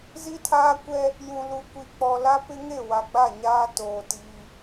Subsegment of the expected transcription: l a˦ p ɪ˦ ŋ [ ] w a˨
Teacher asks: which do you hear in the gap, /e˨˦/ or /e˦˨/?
e˦˨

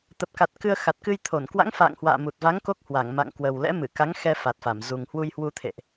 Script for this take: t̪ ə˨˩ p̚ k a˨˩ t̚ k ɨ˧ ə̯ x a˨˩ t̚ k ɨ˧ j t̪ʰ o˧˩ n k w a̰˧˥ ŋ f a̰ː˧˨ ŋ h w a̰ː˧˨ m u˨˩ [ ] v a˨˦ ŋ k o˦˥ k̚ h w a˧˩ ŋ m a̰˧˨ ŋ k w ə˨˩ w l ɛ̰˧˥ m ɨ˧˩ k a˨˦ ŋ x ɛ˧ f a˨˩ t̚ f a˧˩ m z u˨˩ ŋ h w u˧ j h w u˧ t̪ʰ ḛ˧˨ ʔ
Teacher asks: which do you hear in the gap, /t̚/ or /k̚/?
t̚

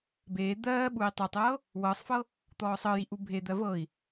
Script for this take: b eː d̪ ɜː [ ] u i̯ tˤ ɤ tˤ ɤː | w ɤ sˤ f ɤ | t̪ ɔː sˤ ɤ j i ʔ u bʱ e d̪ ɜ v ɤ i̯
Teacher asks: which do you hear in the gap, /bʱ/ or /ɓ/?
ɓ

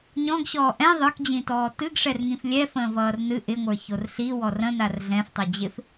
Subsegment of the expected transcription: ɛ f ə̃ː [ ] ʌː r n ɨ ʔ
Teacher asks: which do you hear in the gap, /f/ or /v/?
v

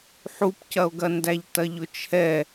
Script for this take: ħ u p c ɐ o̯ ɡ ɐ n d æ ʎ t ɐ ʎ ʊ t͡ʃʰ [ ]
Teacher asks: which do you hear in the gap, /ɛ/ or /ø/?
ɛ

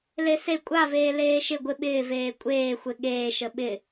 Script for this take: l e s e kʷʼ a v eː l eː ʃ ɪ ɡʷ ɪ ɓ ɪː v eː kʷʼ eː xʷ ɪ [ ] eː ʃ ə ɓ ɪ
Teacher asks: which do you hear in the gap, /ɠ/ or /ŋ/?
ɠ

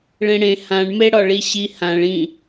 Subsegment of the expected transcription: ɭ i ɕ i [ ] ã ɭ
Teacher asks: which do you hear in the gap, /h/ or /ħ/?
h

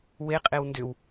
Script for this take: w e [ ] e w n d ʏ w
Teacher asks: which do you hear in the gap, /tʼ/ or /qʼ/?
qʼ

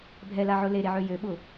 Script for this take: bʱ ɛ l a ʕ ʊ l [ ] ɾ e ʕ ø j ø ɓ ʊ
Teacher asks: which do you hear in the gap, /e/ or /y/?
e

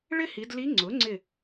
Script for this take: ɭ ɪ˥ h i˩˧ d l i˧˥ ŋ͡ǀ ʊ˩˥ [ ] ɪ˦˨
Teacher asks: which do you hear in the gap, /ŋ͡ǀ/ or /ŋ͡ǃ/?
ŋ͡ǀ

